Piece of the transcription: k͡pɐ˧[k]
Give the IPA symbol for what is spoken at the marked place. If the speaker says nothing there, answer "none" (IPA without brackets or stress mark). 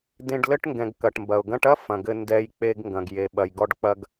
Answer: ɡ